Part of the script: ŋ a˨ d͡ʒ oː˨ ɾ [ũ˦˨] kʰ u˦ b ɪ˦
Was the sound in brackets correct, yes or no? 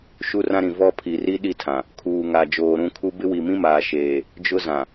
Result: yes